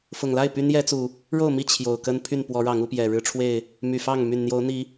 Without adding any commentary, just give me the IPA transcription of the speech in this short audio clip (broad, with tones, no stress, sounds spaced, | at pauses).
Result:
f ʊ˨˩ ŋ l a˥˨ ɪ̯ p y˦ n j ɛ˦ t͡s u˨˩ | ɻ o˥˨ ʊ̯ m i˥˨ t͡ɕʰ j o˨˩ ʊ̯ k ə˦ n pʰ y˥˨ n p w ɔ˨˦ ɻ ɑ˨˦ ŋ u˨˦ p j ɛ˨˩ ɻ ɻ̩˦ ʈ͡ʂʰ w e˥˨ ɪ̯ | m y˨˩ f ɑ˥˨ ŋ m y˨˩ n n̪ j o˨˦ ʊ̯ n̪ i˨˦